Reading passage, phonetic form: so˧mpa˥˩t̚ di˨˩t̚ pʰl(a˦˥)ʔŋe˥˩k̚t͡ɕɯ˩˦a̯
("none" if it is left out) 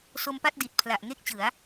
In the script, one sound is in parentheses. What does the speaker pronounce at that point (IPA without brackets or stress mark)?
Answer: a˨˩